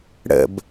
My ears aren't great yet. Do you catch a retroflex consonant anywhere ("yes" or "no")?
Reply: yes